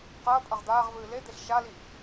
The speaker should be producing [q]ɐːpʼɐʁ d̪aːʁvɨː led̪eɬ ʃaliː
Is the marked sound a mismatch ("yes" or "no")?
no